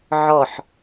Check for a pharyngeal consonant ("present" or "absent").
present